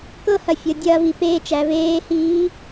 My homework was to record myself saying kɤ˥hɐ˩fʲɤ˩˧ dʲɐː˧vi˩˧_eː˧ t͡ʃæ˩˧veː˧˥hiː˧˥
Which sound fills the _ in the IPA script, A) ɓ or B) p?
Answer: B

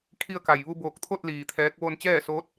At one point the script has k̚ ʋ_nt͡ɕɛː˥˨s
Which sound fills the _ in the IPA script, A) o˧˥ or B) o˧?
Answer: B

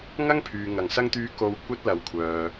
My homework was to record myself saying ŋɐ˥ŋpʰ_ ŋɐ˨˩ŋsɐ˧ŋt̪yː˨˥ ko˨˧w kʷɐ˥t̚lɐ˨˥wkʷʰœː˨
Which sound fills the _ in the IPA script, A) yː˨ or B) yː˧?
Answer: A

